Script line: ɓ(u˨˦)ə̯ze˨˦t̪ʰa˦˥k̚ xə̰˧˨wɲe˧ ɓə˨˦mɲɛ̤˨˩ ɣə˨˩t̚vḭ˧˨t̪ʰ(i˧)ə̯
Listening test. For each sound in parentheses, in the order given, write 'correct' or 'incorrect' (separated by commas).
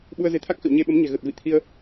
incorrect, correct